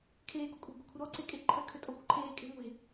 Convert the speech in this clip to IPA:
kʰ eː ɡ ɔ kʷʼ e̤ ɡʷ a̤ kʷʰ ə ɾ ɔ ǀ e kʼ e ǃʰ ə kʰ ø tʼ ɔ kʷ ə ǃʰ eː kʼ e̤ ŋʷ e̤

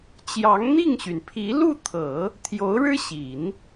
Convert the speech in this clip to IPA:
t͡ɕ j ɑ˧˥ ŋ n̪ i˥˩ ŋ ɕ y˩ n pʰ i˧˥ l u˥˩ t̪ʰ ɤ˨˩˦ | t̪ʰ j o˧˥ ʊ̯ ɻ ɻ̩˥ ɕ i˨˩˦ n

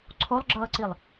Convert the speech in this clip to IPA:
ǀʰ o lˠ ɡ͡ǁ ʌː ǀ i lˠ

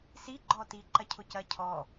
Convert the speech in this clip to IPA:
s i ɡ͡ǃ ɔ t i ǃ ɐ cʰ ʊ c ɐ cʰ ɔ

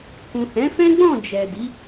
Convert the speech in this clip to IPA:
k ũ˨ h ɛ̃˨˦ f ɛ̃˦ ɡ͡b ɔ̃˦˨ d͡ʒ ɛ˨ d i˨˦

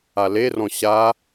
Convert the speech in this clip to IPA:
a l e r ɔ̃ ɕ a

